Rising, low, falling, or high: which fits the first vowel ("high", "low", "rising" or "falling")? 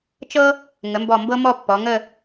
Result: high